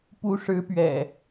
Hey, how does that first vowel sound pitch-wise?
rising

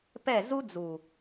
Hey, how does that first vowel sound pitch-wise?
falling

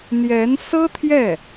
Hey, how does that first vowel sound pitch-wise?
rising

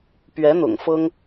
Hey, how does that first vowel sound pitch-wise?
rising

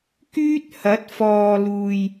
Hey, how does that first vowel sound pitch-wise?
high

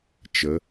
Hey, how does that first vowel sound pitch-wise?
rising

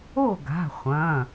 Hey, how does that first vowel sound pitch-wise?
falling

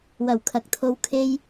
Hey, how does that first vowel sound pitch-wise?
low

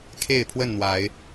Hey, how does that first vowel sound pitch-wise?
falling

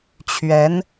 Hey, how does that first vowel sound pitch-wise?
rising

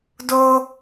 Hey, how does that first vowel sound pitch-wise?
high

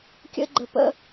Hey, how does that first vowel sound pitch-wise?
high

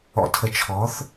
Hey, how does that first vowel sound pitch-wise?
low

